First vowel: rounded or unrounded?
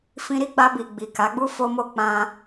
unrounded